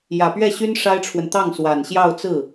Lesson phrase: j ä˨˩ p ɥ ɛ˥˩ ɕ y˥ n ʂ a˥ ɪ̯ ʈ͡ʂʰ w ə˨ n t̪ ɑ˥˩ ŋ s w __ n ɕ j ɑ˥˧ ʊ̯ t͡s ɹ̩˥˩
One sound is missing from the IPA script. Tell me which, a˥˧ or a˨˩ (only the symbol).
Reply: a˨˩